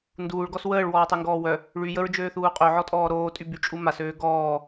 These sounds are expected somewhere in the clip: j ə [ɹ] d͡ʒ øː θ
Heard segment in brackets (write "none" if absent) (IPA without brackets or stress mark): ɹ